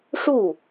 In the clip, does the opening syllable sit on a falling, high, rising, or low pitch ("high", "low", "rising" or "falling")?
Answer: falling